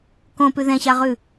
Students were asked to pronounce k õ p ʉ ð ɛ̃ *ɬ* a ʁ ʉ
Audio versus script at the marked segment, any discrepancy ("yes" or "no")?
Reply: yes